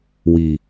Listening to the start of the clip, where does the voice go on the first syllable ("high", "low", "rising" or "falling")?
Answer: low